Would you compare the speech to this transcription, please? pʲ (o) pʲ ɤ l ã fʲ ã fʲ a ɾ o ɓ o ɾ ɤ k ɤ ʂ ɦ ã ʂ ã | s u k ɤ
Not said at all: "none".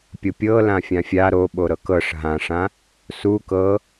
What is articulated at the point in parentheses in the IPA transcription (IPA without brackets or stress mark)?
o